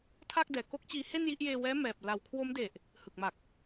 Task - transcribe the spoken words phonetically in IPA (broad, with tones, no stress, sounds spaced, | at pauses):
tʰ a˥˩ k̚ d ɛː˨˩ k o˦˥ k̚ t͡ɕ iː˧ h e˥˩ n j i˥˩ ʔ j eː˧ w ɛː˦˥ m ɛː˨˩ p̚ l a˩˦ w kʰ w o˦˥ m d e˨˩ ʔ | h ɯ˨˩ k̚ m a˨˩ k̚